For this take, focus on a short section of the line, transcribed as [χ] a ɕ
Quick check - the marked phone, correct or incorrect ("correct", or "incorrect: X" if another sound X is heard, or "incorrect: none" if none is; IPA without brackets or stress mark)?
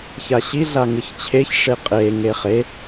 incorrect: ç